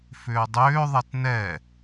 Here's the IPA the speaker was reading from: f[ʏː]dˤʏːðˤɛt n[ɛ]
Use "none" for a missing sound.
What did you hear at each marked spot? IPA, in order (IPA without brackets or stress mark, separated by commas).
ʏː, ɛ